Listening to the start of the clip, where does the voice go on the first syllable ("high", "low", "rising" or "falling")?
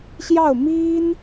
falling